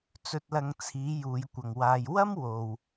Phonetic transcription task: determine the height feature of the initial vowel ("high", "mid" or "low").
mid